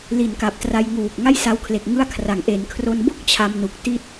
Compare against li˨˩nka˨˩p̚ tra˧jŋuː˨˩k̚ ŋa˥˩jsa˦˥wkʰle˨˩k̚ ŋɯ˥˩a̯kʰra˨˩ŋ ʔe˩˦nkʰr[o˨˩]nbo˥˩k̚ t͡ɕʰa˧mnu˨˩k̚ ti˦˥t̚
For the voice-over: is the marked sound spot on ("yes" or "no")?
no